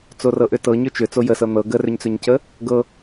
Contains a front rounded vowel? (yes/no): yes